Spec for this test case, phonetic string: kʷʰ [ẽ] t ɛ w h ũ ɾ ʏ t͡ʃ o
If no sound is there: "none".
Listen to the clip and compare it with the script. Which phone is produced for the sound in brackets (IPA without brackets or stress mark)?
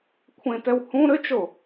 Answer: ẽ